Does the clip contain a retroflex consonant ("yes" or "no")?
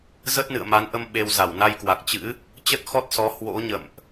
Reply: no